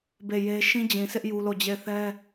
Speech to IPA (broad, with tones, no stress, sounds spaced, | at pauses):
b e˦˨ j e˦ ʃ ĩ˦ d͡ʑ ĩ˨ s ɪ˦ ʔ j u˦ l o˦˨ d͡ʑ e˦˨ ɪ̯ θ ɛ˦